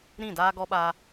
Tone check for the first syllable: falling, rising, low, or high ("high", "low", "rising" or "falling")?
falling